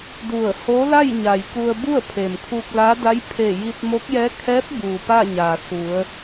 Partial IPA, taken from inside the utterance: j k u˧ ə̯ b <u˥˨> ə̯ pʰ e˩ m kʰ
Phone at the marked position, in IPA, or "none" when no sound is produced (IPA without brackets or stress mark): u˥˨